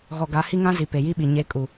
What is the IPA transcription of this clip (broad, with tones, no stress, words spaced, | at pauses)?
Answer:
ɣɔ˨ɡa˨˦ hi˦ŋã˦ zi˨ pe˨ji˦ɓi˨ ɲe˨˦kʼu˨